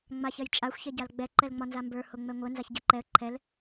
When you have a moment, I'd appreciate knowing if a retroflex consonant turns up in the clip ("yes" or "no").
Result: no